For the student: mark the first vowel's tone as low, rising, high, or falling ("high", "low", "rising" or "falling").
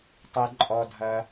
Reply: high